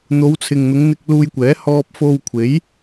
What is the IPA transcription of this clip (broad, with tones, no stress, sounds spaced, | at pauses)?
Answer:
n̪ o˨˧ w t͡sʰ ɪ˨ ŋ n̪ ʊ˨˧ ŋ n̪ ɪ˧ k̚ l uː˧ j kʷ ɛː˨˥ h ɔː˥ p̚ f o˧ w kʷʰ e˨˥ j